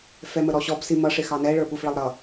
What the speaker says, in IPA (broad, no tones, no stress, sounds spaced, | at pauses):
f ɛ m ə ɾ ɔ ɕ ɔ b s i m ʌ ʂ ɪ x ɑ n ɛ ɭ ə˞ ɓ u f ɭ ə lˠ ɾ ʌ